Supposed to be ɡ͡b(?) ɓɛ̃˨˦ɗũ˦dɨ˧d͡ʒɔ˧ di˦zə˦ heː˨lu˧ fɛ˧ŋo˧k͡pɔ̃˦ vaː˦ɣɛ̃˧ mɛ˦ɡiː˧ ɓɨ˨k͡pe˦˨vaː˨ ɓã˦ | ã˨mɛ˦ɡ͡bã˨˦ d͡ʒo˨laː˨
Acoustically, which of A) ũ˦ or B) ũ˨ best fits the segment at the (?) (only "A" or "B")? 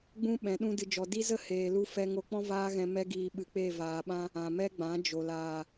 A